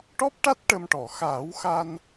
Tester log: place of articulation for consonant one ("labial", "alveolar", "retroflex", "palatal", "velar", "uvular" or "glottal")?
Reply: retroflex